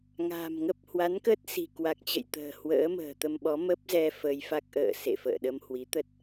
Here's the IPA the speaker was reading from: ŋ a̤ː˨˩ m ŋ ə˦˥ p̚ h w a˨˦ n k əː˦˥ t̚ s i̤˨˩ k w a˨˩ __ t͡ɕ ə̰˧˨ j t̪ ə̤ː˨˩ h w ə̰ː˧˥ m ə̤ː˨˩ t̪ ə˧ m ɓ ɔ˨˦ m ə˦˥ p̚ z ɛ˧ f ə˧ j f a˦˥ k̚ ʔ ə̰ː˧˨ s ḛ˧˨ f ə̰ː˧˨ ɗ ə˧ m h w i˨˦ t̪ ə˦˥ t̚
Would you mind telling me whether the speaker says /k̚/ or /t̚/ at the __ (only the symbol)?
k̚